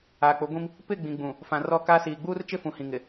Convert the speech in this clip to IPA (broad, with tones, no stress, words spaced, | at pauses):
aː˨k͡pʊ˨˦ɡʷĩ˦m | pɪ˦˨ɡ͡bĩ˨ɡ͡bũ˨ | fã˨rɔ˦˨kaː˦ siː˨ɡ͡buː˦rt͡ʃɪ˦fũ˨ hĩ˨ŋɪ˨